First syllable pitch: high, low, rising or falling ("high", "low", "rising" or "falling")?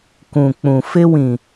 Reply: low